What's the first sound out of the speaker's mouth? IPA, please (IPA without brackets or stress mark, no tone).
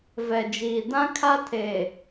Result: v